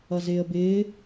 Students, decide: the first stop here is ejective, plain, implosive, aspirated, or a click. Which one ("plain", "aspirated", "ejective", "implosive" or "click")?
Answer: plain